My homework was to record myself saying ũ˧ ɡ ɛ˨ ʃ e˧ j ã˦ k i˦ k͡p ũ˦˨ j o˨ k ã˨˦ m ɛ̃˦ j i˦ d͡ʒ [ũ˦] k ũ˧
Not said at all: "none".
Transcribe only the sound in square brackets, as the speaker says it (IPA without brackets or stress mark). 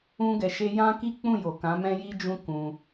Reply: ũ˦